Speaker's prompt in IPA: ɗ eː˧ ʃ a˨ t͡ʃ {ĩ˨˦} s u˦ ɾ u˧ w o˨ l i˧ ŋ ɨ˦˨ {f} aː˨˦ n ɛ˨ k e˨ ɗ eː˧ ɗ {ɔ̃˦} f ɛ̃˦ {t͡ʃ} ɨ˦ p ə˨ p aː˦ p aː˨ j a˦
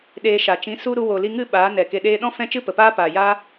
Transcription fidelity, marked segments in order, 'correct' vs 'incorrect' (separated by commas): correct, incorrect, correct, correct